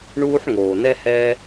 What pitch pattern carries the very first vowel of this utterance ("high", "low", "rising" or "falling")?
high